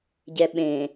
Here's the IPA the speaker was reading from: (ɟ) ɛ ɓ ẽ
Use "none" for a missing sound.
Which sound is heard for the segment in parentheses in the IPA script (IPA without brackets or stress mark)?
ɟ